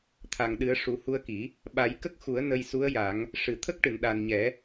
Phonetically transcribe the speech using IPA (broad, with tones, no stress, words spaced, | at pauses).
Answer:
t̪ʰa˨˩ŋɗɨ˨˩˦ə̯ ʂu˨˩˦hu˧ə̯ki˨˩˦ | ɓa˨˩˦jkə˦˥k̚xu˨˩˦ə̯ nə˧jsu˧˥ə̯ ja˨˩˦ŋ | ʂɨ˨˩˨t̪ʰə˦˥k̚ʈɨ˨˩˨n ɗa˨˩nɲɛ˨˩˦